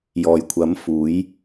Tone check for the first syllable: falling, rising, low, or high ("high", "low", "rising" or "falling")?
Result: low